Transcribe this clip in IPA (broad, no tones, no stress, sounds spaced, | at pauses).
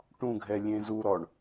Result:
ʈ ũ ɡʱ ɛ lʲ ẽ z u ɾ ɔ ɳ